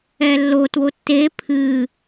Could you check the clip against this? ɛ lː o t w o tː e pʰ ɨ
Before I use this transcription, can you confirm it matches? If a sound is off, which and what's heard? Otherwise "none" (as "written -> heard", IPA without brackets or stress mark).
none